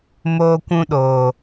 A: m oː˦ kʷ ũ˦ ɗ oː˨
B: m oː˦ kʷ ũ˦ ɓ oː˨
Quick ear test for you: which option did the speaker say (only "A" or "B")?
A